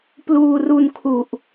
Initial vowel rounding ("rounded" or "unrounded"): rounded